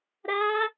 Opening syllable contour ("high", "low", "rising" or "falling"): high